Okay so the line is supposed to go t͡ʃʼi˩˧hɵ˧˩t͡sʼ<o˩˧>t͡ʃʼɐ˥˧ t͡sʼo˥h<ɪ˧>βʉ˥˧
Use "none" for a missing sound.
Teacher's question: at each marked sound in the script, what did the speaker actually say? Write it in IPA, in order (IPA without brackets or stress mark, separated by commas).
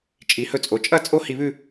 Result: o˩˧, i˧